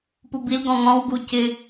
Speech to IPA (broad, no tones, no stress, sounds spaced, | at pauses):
p u b i l ɡ ɔ̃ ŋ ɔ̃ w ɡ u c ɪ